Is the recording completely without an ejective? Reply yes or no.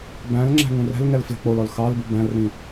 yes